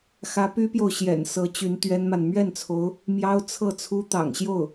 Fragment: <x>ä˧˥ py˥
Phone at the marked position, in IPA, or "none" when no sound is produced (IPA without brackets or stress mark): x